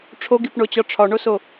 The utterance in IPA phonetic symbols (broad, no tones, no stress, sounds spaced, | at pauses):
ʈ͡ʂʰ o ɡ i p ɳ o t͡ɕ ɒ ʈ͡ʂʰ ɒ ɳ o s o